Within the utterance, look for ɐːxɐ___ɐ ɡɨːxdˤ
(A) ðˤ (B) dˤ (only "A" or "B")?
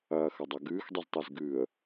B